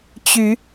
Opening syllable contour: rising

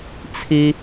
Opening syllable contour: low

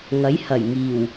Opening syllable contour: rising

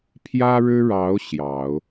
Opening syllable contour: high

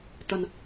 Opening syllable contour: low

